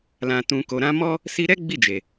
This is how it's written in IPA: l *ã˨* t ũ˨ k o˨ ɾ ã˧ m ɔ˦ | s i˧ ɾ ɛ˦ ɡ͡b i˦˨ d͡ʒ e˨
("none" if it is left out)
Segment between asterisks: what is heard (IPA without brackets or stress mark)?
ã˨